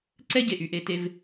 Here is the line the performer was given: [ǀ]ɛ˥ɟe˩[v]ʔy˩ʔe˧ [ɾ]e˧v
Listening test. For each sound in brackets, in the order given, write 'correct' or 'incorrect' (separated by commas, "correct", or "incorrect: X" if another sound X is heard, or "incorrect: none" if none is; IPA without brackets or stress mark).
correct, incorrect: none, incorrect: t